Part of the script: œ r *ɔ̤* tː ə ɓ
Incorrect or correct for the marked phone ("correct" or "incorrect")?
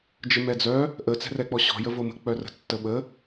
incorrect